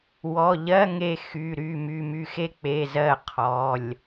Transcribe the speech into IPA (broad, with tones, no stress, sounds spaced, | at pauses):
w ɔ˩˧˩ ʎ ɜ˧˥˧ ŋ e˦˨ x y˩˧˩ ɾ y˩˧˩ m y˩˧˩ m y˦˨ x e˥ k͡p e˩˧˩ z ɜ˦˨ qʰ ɔ˩˧˩ lʲ